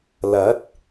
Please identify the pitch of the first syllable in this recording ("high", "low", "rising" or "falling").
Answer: rising